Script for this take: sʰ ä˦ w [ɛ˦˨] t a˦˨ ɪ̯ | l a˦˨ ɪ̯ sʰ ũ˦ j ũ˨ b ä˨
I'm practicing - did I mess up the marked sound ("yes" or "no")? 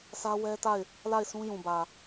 yes